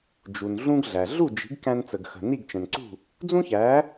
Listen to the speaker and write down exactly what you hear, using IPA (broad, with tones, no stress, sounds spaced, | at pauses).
d͡ʒ u˩ n ɮ ũ˥ ɡ ɮ æ˩ ɮ u˥˩ d͡ʒ i̤˩˥ ɡ k æ̃˧ n t͡s ə˩ ɡ x ə̤˩ n i˥˩ ɡ t͡ʃ ə̃˩ n ǀ ṳ˥˩ | d͡z ũ˥ ç æ˩˥